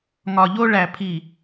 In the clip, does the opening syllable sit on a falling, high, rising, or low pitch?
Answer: low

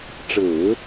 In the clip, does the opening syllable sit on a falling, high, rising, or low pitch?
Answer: low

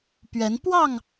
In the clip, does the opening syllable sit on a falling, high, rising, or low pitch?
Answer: rising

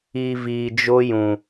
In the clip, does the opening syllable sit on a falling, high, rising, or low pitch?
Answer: low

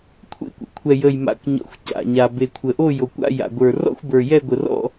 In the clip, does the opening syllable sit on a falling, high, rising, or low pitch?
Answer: falling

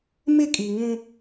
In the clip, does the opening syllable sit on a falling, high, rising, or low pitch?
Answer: falling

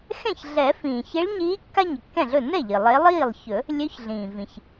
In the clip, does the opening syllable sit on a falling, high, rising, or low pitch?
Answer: falling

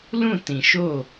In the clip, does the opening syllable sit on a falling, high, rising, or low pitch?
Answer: falling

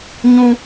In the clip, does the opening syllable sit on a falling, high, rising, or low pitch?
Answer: high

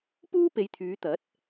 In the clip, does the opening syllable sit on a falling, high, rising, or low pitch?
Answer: high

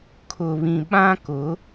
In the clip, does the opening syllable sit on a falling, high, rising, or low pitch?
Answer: low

